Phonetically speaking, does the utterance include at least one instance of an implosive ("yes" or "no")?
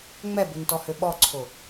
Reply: yes